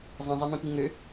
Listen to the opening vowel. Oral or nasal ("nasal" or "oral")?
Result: nasal